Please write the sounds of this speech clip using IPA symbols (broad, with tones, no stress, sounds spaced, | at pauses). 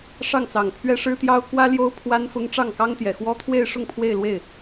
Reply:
ʂ ɑ˥˩ ŋ t͡s ɑ˨˩ ŋ pʰ ɥ ɛ˥ ʂ ɻ̩˥ t̪ j ɑ˥ ʊ̯ k w ä˥ l j o˥ ʊ̯ pʰ w a˥ n f ʊ˥ ŋ ʈ͡ʂ ɑ˥˩ ŋ k ɑ˥ ŋ t̪ j ɛ˨˩ x w ɔ˥ t̪ʰ w e˥˧ ɪ̯ ʂ ʊ˥˧ ŋ pʰ w e˥˧ ɪ̯ l w e˥˩ ɪ̯